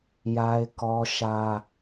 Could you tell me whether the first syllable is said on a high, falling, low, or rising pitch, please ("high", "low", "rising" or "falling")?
high